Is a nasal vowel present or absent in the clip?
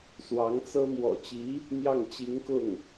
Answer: absent